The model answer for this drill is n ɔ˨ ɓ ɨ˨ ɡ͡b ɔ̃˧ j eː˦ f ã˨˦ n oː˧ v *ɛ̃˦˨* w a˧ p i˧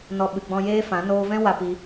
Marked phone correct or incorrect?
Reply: incorrect